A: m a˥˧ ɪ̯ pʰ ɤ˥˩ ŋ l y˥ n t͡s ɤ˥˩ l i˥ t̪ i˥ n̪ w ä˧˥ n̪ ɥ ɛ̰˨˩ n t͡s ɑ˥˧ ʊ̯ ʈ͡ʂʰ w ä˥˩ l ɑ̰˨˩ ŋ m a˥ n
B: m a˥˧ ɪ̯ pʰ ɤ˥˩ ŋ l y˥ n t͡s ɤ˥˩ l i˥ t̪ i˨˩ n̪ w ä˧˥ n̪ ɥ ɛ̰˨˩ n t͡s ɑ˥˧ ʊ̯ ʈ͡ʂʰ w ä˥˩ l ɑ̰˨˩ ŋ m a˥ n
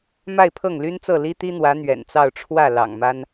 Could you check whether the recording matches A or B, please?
A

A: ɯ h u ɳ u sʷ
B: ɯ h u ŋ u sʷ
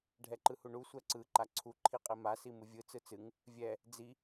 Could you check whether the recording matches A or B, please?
A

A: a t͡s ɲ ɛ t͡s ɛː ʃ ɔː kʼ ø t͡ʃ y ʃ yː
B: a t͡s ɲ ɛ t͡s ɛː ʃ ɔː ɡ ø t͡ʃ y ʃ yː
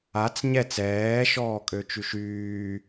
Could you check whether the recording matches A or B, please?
A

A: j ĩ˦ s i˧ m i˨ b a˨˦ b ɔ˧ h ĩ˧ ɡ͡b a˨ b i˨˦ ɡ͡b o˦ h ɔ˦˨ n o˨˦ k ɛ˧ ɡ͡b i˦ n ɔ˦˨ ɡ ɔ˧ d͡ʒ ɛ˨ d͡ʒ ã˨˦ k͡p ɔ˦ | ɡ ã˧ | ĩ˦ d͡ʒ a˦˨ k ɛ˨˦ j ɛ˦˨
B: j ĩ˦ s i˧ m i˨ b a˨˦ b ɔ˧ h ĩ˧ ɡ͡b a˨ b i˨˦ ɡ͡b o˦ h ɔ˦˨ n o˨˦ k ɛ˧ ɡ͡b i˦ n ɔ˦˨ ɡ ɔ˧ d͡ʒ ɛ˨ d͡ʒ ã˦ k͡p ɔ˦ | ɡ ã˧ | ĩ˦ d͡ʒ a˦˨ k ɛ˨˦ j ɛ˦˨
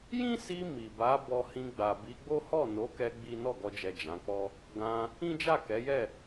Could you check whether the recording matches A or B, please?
A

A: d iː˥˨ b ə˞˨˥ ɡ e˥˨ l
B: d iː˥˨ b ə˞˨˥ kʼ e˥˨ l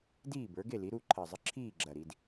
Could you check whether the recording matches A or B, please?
A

